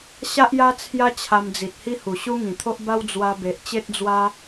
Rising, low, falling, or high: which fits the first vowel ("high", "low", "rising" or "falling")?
high